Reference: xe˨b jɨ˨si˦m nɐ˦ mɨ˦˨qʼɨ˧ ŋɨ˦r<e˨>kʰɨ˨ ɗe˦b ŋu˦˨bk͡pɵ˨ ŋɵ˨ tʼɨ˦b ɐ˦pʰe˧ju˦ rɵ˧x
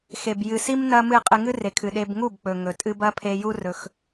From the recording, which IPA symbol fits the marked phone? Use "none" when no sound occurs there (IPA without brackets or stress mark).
e˨